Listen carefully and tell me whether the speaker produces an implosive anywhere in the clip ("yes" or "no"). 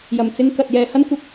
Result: no